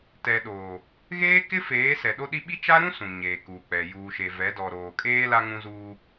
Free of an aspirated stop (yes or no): yes